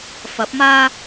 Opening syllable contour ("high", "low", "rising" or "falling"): rising